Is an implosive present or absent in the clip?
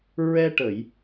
absent